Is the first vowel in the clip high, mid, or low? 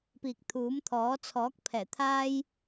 high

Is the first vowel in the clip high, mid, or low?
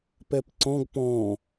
mid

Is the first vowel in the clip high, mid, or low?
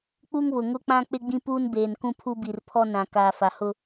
high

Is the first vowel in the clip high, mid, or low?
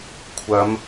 low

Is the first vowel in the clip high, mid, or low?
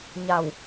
low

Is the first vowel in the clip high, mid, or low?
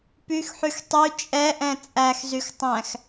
high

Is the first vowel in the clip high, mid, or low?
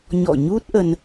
mid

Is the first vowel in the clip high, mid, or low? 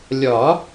low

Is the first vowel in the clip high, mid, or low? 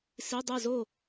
high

